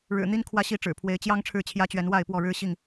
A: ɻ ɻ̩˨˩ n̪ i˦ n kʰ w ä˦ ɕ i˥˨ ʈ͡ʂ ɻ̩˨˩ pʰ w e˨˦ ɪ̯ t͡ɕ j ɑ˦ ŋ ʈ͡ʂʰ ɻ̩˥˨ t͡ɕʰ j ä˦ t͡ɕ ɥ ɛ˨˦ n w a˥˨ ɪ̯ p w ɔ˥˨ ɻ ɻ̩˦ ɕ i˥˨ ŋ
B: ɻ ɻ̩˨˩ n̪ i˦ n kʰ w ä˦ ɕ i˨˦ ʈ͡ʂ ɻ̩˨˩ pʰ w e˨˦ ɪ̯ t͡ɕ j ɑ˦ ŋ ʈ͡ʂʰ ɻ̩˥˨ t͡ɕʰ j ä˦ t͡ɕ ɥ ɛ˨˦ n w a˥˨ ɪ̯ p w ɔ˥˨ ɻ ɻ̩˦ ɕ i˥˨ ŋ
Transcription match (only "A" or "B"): A